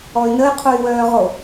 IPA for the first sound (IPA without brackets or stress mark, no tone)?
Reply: ɔ